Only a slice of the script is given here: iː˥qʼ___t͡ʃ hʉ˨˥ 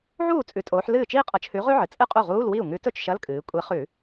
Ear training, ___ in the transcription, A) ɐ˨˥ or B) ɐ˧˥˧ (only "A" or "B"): A